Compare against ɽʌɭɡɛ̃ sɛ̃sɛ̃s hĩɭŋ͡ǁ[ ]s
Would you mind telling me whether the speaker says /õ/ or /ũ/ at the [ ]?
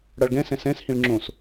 õ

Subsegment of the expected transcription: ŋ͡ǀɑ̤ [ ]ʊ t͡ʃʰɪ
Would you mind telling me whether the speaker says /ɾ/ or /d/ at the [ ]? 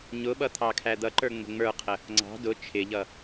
d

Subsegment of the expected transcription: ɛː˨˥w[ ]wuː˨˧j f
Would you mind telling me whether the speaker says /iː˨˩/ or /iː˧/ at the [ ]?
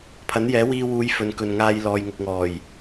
iː˧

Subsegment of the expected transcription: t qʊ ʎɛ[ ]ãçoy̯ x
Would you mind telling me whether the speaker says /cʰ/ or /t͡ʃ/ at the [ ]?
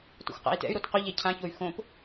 cʰ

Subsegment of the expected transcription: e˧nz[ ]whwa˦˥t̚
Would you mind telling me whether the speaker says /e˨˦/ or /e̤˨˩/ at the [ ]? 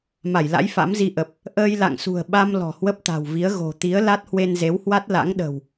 e˨˦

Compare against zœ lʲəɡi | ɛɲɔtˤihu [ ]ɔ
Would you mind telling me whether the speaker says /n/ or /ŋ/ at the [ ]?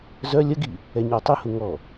ŋ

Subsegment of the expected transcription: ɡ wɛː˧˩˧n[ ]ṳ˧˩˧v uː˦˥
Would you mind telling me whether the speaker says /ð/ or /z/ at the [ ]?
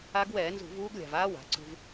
z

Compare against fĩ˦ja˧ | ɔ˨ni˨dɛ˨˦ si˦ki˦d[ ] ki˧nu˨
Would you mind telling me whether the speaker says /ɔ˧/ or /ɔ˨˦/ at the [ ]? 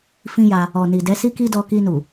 ɔ˧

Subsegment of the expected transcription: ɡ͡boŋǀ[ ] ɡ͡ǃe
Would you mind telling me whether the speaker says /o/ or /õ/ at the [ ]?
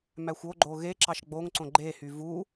õ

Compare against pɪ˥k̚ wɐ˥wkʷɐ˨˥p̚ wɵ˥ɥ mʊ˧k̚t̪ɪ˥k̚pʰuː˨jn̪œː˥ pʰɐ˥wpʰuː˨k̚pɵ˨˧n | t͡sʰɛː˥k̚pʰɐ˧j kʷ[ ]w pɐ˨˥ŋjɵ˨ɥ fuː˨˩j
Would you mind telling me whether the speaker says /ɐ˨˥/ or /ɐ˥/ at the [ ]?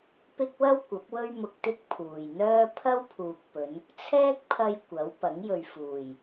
ɐ˨˥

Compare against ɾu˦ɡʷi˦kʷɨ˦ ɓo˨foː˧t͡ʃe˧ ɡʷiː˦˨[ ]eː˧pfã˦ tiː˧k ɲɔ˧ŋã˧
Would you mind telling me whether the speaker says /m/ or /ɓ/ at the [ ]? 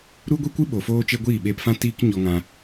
ɓ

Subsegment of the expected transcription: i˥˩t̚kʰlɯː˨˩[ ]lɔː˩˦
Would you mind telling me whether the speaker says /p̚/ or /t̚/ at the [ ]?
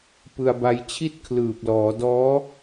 p̚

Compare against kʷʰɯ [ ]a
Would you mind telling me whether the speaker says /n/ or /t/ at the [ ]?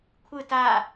t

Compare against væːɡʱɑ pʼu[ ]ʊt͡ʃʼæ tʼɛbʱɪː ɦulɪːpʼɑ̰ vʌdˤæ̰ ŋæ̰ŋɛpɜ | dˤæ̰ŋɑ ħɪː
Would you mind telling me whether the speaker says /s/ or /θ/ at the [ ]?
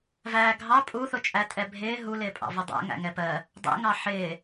θ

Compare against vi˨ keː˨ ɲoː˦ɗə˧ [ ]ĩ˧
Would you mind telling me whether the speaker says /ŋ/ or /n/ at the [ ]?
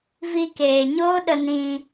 n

